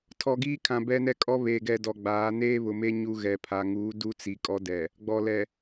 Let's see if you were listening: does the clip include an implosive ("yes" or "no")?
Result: no